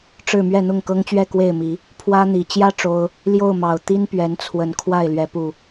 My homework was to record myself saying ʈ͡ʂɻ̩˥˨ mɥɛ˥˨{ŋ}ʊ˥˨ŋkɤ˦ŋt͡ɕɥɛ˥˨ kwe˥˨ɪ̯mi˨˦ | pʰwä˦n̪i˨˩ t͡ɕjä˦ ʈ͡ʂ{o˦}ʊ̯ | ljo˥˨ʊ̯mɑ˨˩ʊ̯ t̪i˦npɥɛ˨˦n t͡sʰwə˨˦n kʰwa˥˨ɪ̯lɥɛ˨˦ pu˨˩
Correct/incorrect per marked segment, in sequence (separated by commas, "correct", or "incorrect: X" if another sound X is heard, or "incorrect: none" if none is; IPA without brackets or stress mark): incorrect: n̪, correct